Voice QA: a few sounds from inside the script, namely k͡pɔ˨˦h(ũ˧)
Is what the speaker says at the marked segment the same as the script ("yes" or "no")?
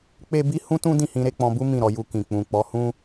no